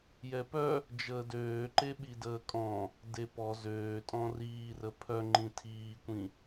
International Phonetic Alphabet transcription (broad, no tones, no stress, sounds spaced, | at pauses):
j ɛ p œ | d͡ʒ əː d øː ǃ e ɓ i d əː kʼ ɔ̃ | d e p ɔ z øː tʼ ɔ̃ r iː r ə pʰ œ ŋ͡ǃ ĩ tʰ iː kʷ ĩ